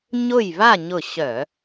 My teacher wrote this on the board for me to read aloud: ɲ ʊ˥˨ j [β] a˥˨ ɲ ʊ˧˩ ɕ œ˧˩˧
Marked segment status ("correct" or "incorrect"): correct